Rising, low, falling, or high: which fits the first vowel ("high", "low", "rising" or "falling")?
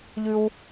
high